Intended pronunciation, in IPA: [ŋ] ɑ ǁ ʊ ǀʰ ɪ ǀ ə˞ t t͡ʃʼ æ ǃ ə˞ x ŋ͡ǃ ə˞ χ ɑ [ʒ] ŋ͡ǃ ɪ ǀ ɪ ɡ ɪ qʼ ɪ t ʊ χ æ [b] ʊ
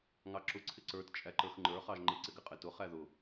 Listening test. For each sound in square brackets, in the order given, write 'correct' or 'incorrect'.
correct, correct, incorrect: ð

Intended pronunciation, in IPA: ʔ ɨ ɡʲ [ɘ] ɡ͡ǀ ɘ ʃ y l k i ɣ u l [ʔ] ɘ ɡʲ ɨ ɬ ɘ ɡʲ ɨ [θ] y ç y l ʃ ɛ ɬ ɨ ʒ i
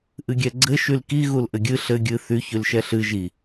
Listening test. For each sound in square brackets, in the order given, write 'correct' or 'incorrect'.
incorrect: ɛ, correct, correct

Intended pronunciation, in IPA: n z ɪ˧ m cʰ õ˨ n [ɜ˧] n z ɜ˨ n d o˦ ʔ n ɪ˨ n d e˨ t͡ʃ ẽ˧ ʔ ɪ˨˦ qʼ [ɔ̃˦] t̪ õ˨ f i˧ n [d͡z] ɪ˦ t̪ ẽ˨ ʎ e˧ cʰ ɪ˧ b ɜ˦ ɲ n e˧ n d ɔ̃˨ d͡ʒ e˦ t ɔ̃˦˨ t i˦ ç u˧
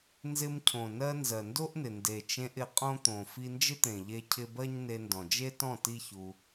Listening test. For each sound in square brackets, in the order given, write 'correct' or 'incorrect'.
correct, incorrect: õ˦, incorrect: d͡ʒ

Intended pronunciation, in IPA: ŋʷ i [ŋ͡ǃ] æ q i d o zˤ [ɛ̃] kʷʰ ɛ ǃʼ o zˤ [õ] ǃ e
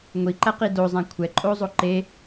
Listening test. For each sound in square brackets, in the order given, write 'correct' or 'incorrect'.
incorrect: ǃ, correct, incorrect: o

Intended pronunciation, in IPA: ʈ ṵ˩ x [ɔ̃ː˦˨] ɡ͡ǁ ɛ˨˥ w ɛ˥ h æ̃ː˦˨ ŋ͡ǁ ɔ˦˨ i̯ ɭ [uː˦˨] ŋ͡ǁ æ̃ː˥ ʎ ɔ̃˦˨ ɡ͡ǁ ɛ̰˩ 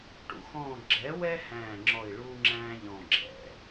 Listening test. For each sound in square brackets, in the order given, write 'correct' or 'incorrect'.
correct, incorrect: uː˥

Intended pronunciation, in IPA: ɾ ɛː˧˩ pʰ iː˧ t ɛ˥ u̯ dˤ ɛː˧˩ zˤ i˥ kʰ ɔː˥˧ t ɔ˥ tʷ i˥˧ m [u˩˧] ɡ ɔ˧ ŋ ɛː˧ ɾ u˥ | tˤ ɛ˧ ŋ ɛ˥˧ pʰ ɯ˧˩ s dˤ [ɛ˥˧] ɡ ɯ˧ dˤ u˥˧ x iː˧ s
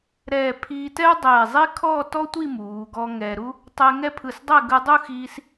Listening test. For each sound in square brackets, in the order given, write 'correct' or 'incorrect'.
incorrect: uː˩˧, correct

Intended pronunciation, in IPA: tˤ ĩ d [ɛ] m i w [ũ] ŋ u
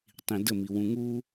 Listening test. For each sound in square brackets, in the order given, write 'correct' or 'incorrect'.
incorrect: ə, correct

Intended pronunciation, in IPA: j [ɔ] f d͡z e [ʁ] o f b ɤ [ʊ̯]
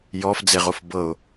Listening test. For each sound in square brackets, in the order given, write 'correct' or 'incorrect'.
correct, correct, correct

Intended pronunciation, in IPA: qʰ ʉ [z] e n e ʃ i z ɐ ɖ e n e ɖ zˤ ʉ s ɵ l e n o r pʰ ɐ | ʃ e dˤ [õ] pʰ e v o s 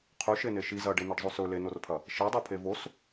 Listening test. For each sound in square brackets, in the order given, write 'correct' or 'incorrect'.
incorrect: ʃ, incorrect: o

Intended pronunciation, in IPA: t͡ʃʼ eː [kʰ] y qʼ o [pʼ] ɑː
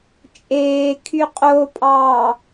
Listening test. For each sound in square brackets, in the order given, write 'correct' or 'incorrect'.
correct, correct

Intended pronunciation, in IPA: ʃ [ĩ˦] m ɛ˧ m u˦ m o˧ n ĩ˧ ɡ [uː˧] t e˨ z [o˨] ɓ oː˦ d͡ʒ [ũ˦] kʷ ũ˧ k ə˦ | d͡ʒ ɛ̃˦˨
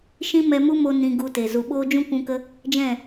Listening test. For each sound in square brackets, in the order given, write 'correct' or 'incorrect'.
correct, incorrect: u˧, incorrect: u˨, correct

